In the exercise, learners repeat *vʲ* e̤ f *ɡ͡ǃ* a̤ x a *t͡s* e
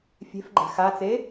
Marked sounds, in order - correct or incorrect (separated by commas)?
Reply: incorrect, correct, correct